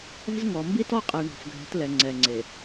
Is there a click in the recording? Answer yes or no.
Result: yes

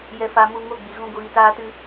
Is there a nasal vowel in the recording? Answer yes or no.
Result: yes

